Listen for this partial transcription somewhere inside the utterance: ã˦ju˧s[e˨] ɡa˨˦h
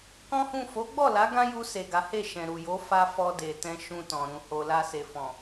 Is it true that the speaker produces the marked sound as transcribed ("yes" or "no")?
yes